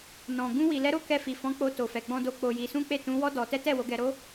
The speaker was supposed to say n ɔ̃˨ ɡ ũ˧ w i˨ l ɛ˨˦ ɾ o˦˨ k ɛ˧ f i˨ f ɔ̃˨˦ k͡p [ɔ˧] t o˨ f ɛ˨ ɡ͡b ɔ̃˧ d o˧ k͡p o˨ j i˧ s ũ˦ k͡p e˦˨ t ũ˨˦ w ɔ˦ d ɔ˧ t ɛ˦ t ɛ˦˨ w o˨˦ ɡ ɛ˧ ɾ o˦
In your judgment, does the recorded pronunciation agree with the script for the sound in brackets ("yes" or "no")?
no